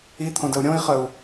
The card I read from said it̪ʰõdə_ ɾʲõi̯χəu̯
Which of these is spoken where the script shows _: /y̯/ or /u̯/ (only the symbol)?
u̯